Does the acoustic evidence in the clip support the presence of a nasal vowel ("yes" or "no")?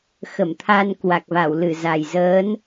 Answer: no